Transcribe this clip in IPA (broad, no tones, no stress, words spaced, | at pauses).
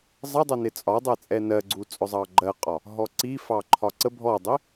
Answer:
zˤədˤə nɪt͡sʼɒdˤɛ t͡sʼɛnɜɡ͡ǀu t͡sʼʊzˤɑɡ͡ǃɜqʼɒ | ɦɔǀi fɑǃʰɒǀə bʱɔdˤi